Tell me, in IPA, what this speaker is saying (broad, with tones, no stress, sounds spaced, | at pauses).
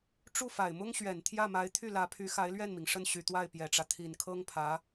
ʈ͡ʂ u˥˩ f a˨˩ ɪ̯ m ʊ˥ ŋ ɕ ɥ ɛ˨˩ n t̪ʰ j ä˥˩ m a˧˥ ɪ̯ t̪ʰ y˥˩ l ä˧˥ pʰ y˧˥ x a˧˥ ɪ̯ l ɥ ɛ˥˩ n m i˩ ŋ ʂ ə˥˩ n ɕ y˨˩ t̪ w a˥˩ ɪ̯ p j ɛ˨˩ ʈ͡ʂ ä˦ t̪ʰ i˨˩ n kʰ ɤ˥ ŋ pʰ ä˧˥